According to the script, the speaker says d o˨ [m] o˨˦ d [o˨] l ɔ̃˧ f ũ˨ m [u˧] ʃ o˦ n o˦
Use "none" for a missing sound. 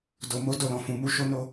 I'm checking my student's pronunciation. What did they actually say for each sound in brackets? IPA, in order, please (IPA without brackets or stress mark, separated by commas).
m, o˦˨, u˧